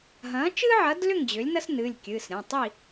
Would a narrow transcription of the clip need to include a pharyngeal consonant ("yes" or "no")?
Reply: yes